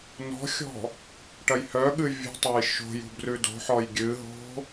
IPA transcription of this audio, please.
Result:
n ɔ̤ xʲ ɔ̤ | ʈ ɐ j h œ ɠ ɨ vʲ ṳ tˤ o j ʃ o̤ j ṳ b r ʉ d o̤ ħ ɔ j ɡʲ ɨ ɦ o̤

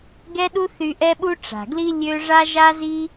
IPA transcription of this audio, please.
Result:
ɡ ɛ˥ ɗ u˥ θ y˥ ʔ ɛ˥ ɓ u˥ ʈ͡ʂ a̤˩ ɡ l i˥ lʲ ø˥ ʐ a˥ ʒ a˥ z i˥

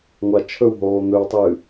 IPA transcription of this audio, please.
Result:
ŋʷ a t͡ʃʰ ɵ w ɦ oː n̪ ɵ w tˤ ɨː

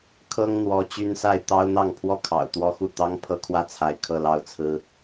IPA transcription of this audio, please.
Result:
kʰ ɤ˥ ŋ n̪ w ɔ˧˥ t͡ɕ y˥ n s a˥˩ ɪ̯ t̪ ɑ˥ ʊ̯ n̪ ɑ˥˩ ŋ pʰ w ɔ˥ kʰ ɑ̰˨˩ ʊ̯ t̪ w ɔ˥ x u˥˩ t̪ ɑ˥ ŋ pʰ ɤ˥ kʰ w ä˥˩ t͡sʰ a˧˥ ɪ̯ kʰ ɤ˥˧ l ɑ˥˩ ʊ̯ t͡sʰ ɹ̩˥

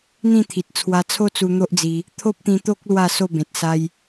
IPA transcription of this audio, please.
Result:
n̪ ĩ˥˧ t̪ʰ i˨ t̚ t͡sʰ w a˧ t͡sʰ o˦ t͡s u˧ n̪ o˦ ʔ d͡z i˧ | t̪ʰ o˦ p̚ t̪ ĩ˧ t̪ o˦ k̚ l w a˥˧ s o˥˧ b ẽ˨ t̚ s a˧ j

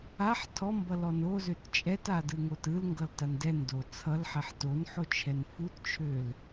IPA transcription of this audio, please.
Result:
a ħ tʰ ɔ m b ʌ l ɔ n o z ø t t͡ʃʼ ɛ t a d ɯ ŋ o t ɯ l ŋ ɡ ʌ l t a n d ɛ n d o t͡sʰ ʌ l ħ ɛ ħ t o n ħ o t͡ʃʰ ɛ n f u t t͡ʃʰ ø l

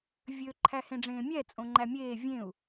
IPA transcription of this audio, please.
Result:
vʲ ø ǃʰ æ h ẽ ɖ͡ʐ ẽː mʲ ɛ t͡sʼ õ ŋ͡ǃ æ mʲ eː vʲ ẽ u̯

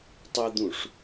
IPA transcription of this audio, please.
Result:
tˤ ɯ d̪ ũ ʂ

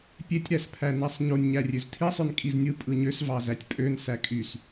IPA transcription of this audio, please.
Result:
pʲ e tʲ ɾ æ s pʰ æ n æ sˤ ɲ o nʲ ɲ æ rʲ ø z tʰ i sˤ ø n kʼ i z nʲ ɯ pʼ ɯ ɲ ø s v ɑ z æ tʲ pʼ ø n s æ kʼ y s

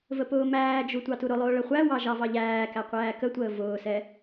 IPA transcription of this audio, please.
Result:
v ə p ʊː m æː d͡ʒ u tʷ ɑ t u ɾ ʊ lˠ ʊː ɭ ə χʷ æ w ɑ ʒ ɑ v ɑ ʎ æː k æ qʷ æː k ə tʷ əː v ʊː s ɛ

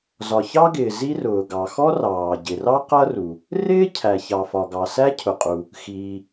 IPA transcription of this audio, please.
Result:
z ɒ˩ ç ɑ˥ ɡ ɪː˩ z i˥ r ʊː˩ ɡ ɑ˩ x ɔ˥ r ɑː˩ ɟ ɪ˩ r ɑ˥ q ʌ˥ r u˩ | r ɪː˥ cʰ æ˩ ç ɑ˩ f ɒ˩ ɡ ɑ˩ s æ˥ cʰ ʊ˩ qʼ u˩ | x iː˩

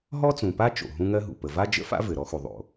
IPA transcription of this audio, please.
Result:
ɦ ɔ˥ t͡s ũ˩ p a˥ t͡ʃ o̰˩ ɦ ũ˥ ŋ ɜ˥ ɦ ṵ˩ p ə˩ v a˥ d͡ʒ ə̰˥ f a̰˥ v ɘ˩ ɾ ɔ˥ x u˩ ðˤ o̰˩

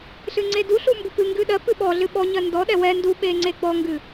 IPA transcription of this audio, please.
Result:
ɬ ɨ ŋ͡ǀ e d u ɬ u m b ʊ p ɨ ŋ ɡ ɨ ɗ ɜ p ɨ ɓ ɔ ɮ ɨ ɓ ɔ ɲ ɜ n d ɔ ɗ ɛ w ɛ n d u ɓ e ŋ͡ǀ e ɡ͡b ɔ ŋ ɡ ɨ

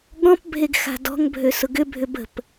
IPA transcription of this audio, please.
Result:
ɠ ɔ̃ p bʱ e ɡ x a̤ d ɔ̤ ŋ bʱ ø s ʊ ɡ ʏ bʱ ʏ b ə̤ p

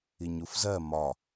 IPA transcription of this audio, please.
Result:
i ɲ u f z ɜ m ɒ

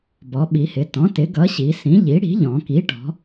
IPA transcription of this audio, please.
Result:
b ɔ˩˧ ɓ i˩˧ h ɪ˩˧ t ɔ̃˩˥ t ɪ˩˥ ɡ ʌ˩˥ ɕ i˩˧ s ĩ˩˥ ʎ i˩˥ ɽ i̤˩˥ ʎ ɔ̃˩˧ k i˩˥ ʈ ɔ̤˩˧

